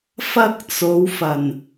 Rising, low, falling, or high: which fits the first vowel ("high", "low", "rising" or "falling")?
high